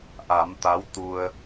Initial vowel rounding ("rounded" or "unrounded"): unrounded